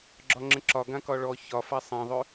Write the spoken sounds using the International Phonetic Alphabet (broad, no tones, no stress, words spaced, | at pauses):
ɡ͡ǁɒŋ͡ǁə̃ǁɒ ɡãkɒɭɔ çɒfa sˤãðˤø